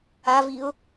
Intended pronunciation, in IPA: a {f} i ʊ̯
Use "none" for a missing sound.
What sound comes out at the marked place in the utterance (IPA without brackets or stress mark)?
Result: v